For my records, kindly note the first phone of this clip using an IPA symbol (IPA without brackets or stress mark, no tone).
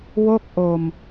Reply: w